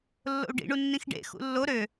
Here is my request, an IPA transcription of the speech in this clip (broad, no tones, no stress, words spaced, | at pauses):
lːo̰u̯ɖḭɳunːĩx ɖḛ xṵlːo ɾø